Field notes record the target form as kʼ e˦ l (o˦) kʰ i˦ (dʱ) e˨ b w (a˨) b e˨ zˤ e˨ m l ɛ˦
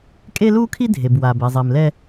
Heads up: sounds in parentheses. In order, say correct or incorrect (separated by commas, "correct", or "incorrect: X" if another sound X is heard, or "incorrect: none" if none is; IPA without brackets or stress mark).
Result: incorrect: u˦, correct, correct